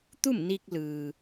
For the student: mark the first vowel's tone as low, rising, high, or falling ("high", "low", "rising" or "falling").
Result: falling